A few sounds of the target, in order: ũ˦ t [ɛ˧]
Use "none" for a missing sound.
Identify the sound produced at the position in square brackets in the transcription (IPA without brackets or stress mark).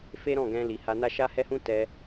ɛ˧